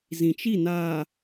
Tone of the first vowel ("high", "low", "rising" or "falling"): low